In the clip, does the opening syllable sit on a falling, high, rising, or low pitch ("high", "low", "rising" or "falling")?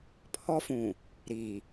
high